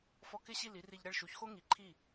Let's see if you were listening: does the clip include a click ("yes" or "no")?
yes